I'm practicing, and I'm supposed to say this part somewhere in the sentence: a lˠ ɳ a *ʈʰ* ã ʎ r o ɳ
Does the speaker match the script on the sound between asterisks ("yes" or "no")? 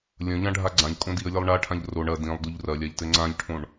yes